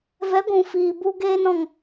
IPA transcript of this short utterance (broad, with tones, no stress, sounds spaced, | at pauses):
v ɛ˨˦ ɡʷ ũ˨ f iː˨ b u˧ ɡ eː˧ n ɔ̃˨ ŋ